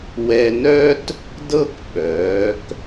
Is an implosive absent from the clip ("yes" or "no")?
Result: no